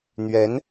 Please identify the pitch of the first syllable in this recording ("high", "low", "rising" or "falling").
rising